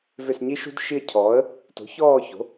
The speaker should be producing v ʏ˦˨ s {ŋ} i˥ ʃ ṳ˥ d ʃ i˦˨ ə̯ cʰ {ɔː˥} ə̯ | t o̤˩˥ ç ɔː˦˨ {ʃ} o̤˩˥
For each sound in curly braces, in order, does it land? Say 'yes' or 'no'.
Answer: no, no, no

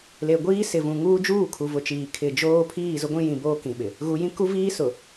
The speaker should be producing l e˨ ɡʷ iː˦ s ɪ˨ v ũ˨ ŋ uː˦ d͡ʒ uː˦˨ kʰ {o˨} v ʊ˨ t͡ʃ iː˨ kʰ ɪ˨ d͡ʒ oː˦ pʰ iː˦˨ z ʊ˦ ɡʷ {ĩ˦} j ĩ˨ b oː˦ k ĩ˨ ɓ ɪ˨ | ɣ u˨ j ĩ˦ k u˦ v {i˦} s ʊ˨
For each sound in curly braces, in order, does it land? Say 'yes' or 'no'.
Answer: no, yes, no

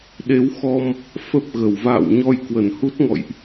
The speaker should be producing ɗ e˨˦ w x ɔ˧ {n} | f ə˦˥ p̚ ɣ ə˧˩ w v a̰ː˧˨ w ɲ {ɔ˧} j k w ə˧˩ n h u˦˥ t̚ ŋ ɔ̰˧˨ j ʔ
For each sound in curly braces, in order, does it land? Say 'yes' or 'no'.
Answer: no, yes

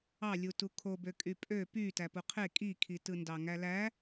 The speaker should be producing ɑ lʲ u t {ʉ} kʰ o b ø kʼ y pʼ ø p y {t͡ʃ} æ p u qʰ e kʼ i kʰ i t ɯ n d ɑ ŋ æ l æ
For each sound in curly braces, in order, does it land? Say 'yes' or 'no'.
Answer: no, no

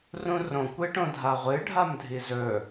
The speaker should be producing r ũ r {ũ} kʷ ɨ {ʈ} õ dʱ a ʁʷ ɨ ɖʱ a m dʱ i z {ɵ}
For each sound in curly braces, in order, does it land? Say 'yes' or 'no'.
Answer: no, yes, yes

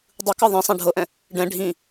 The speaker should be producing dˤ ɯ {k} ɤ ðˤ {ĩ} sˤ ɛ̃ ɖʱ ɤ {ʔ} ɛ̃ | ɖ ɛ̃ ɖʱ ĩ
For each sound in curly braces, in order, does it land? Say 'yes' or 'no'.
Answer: yes, yes, yes

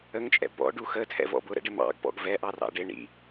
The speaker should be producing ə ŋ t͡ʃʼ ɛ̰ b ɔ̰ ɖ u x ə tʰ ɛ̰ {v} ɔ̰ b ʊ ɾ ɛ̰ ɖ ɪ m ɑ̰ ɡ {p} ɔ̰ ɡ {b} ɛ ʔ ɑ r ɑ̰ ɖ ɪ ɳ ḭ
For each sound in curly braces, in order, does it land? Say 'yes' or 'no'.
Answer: yes, yes, no

